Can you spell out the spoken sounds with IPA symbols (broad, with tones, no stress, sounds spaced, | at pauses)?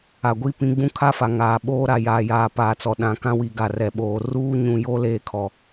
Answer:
a˨ ɡʷ i˦ p ĩ˨˦ ɡ͡b ũ˦ kʰ a˦ f a˨ ŋ aː˨ ɓ oː˦ ɾ a˨ j aː˨ j aː˨ p aː˨ t͡s ɔ˨ ɗ ã˨ k ã˦ w i˨ ɡ a˨ r ɛ˨ ɓ oː˨ r uː˦ ɲ ũ˨ j o˦ l eː˦ kʰ ɔ˨